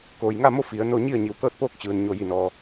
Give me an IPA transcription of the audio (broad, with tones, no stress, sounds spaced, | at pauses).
k oː˩ j ŋ a˥˨ m o˥˨ f i˩˧ ə̯ n o˥˨ ɲ i˥˨ ə̯ ɲ i˩ w t̪ ɤː˥˨ t̚ p oː˥˨ k̚ t͡ɕ ɯː˩ n ɲ o˧˩ j i˧˩ n ɔː˩